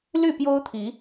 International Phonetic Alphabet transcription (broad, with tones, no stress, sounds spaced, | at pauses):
l y˥˨ p j o˦ ʊ̯ t̪ʰ i˨˦